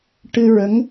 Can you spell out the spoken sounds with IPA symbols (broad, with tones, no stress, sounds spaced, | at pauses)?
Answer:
ʈ ɨ˧ ɹ ə˧˥ ŋ